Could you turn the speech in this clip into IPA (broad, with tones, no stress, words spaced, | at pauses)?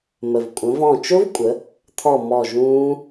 mə˩vkʷʼə̃˩˧vɔ̃˧˩ t͡ʃʊ˦˥vkʷʼə˩˧ | t̪ʰɔ˧˩ mɔ˧˩ʒũː˦˥